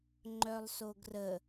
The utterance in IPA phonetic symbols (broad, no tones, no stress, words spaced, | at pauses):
ŋ͡ǃœlˠsoɡrə